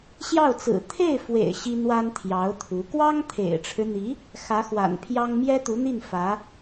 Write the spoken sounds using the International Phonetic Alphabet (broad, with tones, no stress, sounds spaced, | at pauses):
ɕ j ɑ˥˩ ʊ̯ t͡s ɹ̩˨˩ t̪ʰ e˥˩ ɪ̯ f w ḛ˨˩ ɪ̯ ɕ i˥ n̪ w a˥ n t̪ʰ j ɑ˧˥ ʊ̯ t̪ʰ u˧˥ k w ɑ˥ ŋ t̪ʰ ḛ˨˩ ɪ̯ ʈ͡ʂʰ ɻ̩˦ n̪ i˧˥ | x ä˧˥ x w a̰˨˩ n pʰ j ɑ˥ ŋ m j ɛ˥ t̪ u˧˥ n̪ i˥˩ n f ä˧˥